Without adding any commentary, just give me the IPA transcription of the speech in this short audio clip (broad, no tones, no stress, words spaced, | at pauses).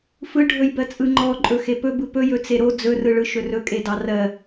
fɯɖʱɵjbɜt͡sʼɯ ŋ͡ǃɔǃʼɵ xepɵbɯ pɵjɵt͡se ɾo d͡zɵrɯɭɯ ʃɵrɵkʼe dɑrɜ